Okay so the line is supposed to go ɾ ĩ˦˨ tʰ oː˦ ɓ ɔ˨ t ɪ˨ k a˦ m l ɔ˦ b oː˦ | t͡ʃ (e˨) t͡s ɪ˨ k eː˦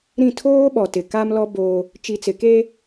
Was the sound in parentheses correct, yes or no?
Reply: no